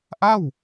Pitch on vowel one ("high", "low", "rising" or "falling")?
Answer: falling